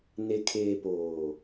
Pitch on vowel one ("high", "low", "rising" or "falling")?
low